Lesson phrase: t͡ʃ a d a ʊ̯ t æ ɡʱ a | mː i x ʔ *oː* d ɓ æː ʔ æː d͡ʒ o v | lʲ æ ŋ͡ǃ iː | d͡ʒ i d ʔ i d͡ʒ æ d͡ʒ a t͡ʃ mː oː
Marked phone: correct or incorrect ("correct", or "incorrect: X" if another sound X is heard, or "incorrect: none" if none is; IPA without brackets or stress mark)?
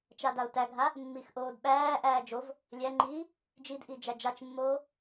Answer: correct